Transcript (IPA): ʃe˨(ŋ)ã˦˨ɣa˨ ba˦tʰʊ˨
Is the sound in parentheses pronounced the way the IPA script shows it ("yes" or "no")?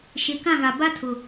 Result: no